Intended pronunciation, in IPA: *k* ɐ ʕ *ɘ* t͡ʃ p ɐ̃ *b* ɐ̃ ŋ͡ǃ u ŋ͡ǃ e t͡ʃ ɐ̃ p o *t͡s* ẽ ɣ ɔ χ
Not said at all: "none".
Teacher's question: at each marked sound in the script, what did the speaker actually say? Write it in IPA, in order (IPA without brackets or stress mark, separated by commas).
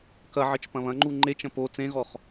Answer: k, ɘ, β, t͡s